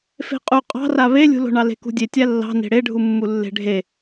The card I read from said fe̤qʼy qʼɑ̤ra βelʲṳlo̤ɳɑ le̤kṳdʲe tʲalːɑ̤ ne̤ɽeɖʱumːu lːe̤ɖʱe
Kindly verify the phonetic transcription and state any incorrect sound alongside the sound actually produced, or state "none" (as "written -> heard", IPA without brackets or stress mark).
y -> u